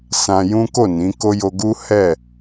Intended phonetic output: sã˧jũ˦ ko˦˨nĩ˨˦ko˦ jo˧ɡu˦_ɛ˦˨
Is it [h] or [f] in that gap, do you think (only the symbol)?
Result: h